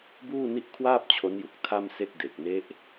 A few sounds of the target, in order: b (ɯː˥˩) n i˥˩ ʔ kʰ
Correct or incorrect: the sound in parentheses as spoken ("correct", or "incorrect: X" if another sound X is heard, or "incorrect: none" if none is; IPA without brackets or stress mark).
incorrect: uː˥˩